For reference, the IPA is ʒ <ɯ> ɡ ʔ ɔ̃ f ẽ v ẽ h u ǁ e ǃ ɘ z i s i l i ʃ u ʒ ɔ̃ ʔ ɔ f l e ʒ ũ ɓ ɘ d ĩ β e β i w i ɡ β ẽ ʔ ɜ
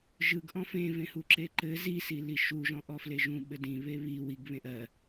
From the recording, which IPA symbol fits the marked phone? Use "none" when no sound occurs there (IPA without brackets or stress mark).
ɯ